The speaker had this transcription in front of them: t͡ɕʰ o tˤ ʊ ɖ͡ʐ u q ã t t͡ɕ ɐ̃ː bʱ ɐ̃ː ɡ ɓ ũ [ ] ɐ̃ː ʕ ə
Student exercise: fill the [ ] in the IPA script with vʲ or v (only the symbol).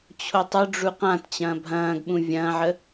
vʲ